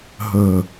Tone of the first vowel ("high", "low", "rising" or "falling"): low